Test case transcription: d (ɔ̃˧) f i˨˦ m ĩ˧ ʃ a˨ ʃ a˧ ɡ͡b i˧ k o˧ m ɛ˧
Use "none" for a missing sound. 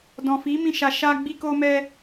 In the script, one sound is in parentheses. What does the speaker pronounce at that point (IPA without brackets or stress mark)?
ɔ̃˨